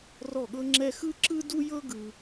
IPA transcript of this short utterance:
rɔ˥˩ɠɤ˥ŋ͡ǁɛ˥ xɯ˥ǁɯ˥du˥jɤ˥ ɡɯ˥

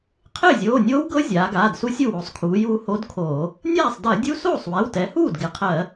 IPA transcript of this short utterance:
qʰɪː˥˩zʲoː˩˧˩nʲoː˦˥wɡɤ˦˥ zʲaː˩˧ɡaː˩˧˩dsu˦˥sʲu˥˩ wo˩˧sˤkʰuː˩˧juː˧ ho˦˥dkʰoː˧˩˧ | nʲaː˥˩sˤdɜ˧˩˧dʲu˦˥ soː˥˩sˤwɛ˩˧˩wtɛ˩˧huː˥˩d ɡɪ˩˧qʰɜ˧˩˧

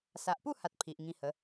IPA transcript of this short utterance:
sa˨ʔpu˥˧ha˨t̚ pʰi˨ʔŋĩ˧hə˨˦

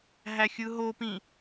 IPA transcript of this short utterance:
ɦæxʲɯɦopĩ

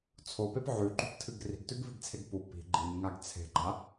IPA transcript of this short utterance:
t͡sʰopep ʕʉǃṳptʰɨɡ ri̤ɡtʉɡviɡt͡sʰeɡ pu pi̤ ɡ͡ǃimŋaɡ t͡sʰe̤ɡ͡ǃa

